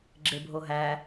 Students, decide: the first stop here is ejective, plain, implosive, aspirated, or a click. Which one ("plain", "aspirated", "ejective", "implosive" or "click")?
click